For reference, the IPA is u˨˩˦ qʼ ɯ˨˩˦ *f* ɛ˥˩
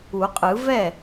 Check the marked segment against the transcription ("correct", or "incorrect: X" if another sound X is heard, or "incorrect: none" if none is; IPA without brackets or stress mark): incorrect: v